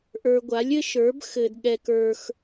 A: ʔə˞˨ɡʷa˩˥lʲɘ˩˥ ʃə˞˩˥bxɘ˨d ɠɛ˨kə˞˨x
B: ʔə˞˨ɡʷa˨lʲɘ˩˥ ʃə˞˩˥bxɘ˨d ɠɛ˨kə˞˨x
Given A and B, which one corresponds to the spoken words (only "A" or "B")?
A